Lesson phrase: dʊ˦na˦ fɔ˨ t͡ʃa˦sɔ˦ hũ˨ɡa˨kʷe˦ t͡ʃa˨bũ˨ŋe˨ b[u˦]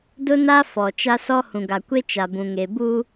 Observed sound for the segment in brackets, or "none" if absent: u˦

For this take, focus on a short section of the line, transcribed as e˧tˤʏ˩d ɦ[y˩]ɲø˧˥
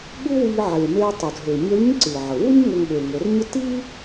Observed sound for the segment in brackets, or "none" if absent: ø˩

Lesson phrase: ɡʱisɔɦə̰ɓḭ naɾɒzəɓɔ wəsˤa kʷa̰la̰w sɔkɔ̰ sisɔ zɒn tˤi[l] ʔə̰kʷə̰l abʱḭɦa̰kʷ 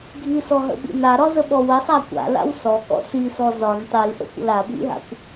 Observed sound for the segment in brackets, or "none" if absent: l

